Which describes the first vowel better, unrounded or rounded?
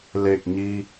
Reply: unrounded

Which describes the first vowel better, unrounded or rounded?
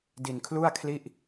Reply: unrounded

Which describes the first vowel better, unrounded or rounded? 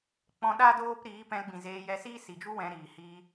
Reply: rounded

